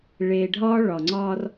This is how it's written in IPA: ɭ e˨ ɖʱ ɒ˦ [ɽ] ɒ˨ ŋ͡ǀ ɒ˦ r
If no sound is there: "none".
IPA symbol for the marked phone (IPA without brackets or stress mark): ɭ